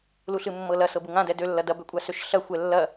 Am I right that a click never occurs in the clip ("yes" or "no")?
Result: yes